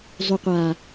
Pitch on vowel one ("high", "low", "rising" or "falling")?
low